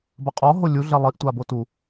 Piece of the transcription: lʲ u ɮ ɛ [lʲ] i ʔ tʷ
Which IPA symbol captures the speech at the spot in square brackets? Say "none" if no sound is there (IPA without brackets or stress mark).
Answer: lˠ